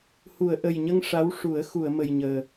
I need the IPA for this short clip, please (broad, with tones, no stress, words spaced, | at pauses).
hu˨˩˨ə̯ʔə˨˩jɲə˧ŋ ʂa˧˥wʂu˨˩˦ə̯ xu˨˩˨ə̯mə˨˩jɲəː˨˩